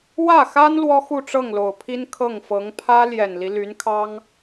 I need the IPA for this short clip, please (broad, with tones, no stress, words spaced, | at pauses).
wä˥˩xa˥n lwɔ˥xu˥˧ ʈ͡ʂɤ˥˩ŋlo˨˩ʊ̯pʰi˥n kʰɤ˥˩ŋfɤ˧˥ŋ pʰä˥ljɛ˨˩nli˦ ly˧˥nkʰɑ˥ŋ